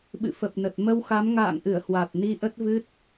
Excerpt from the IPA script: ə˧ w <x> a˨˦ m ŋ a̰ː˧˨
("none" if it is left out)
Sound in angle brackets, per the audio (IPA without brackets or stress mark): x